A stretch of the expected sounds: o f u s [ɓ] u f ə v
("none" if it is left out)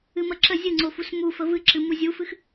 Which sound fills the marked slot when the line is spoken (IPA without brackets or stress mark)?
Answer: m